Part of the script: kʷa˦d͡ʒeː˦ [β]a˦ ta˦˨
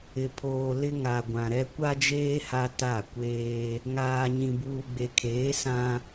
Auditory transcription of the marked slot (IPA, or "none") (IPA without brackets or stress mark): h